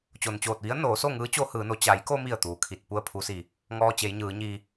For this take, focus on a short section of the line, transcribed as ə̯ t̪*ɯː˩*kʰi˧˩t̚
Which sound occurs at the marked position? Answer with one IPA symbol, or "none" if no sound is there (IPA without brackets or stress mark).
uː˩